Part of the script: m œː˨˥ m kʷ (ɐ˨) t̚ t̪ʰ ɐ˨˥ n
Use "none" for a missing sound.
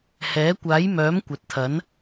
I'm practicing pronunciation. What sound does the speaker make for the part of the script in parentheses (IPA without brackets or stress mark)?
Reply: ɐ˨˥